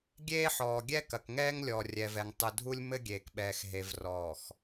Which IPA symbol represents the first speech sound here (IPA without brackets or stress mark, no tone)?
ɡʲ